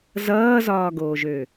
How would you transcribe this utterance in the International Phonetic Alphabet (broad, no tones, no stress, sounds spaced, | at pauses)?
z ʌː z ɒː ɡ oː ʒ ø